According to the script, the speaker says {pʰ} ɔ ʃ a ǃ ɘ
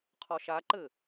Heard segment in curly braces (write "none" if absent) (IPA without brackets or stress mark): qʰ